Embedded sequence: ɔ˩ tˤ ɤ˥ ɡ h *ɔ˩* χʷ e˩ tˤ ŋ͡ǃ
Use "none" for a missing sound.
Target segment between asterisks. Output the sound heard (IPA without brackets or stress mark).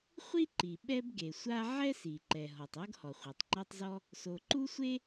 ɔ˩